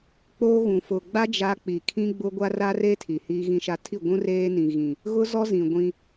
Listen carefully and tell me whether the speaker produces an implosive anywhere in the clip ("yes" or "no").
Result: no